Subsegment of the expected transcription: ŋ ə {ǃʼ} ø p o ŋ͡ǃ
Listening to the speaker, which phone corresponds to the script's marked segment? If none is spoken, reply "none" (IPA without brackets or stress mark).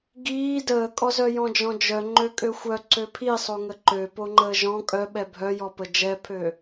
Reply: ǃ